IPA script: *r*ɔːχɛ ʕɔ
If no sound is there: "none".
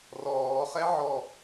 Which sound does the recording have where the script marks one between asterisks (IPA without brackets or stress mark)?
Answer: r